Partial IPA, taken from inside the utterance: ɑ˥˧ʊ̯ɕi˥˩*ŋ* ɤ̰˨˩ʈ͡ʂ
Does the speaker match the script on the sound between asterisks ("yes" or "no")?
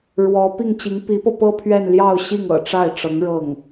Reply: yes